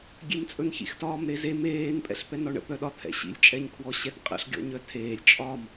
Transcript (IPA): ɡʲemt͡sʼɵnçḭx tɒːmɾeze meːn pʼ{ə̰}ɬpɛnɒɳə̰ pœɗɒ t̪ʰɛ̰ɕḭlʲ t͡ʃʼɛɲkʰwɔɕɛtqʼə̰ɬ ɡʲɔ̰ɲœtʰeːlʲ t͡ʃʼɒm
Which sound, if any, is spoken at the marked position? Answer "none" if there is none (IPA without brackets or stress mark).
ɛ̰